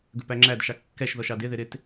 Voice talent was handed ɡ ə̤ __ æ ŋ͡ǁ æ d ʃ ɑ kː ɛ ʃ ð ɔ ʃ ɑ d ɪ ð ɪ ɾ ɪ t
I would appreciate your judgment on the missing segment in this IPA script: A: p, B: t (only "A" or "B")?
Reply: A